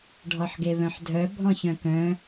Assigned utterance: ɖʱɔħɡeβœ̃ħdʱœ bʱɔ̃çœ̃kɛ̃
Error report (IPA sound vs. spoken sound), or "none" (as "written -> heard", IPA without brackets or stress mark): ɛ̃ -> œ̃